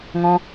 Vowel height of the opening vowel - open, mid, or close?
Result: mid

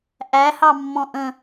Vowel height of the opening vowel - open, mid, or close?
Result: open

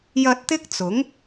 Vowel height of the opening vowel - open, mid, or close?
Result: open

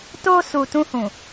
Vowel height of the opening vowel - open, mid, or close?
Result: mid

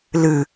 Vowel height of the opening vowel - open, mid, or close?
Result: close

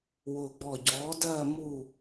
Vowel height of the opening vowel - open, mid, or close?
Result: close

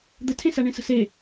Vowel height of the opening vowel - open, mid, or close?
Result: mid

